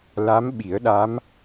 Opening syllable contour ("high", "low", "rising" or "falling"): rising